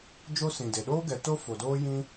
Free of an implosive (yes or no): no